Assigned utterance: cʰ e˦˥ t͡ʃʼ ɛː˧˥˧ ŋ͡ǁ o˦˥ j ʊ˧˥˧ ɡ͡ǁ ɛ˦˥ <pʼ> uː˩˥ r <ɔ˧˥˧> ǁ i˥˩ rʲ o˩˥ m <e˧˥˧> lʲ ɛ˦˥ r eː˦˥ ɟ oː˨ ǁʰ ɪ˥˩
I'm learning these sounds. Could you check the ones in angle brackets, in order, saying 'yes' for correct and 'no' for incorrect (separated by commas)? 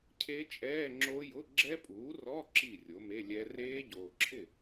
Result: yes, yes, yes